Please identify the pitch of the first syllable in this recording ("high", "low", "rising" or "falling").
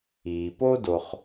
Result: low